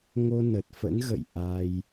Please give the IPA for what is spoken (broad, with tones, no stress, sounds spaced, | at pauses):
ŋ o˧ n ə˨˩ t̚ f ə̰˧˥ n ɣ ə̰˧˨ j ʔ a˧ j